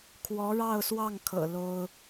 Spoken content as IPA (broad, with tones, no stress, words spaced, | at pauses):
kʰwɔ˧˥ɻɑ˥˧ʊ̯swɑ˥˩ŋkʰɤ̰˨˩ lo˥ʊ̯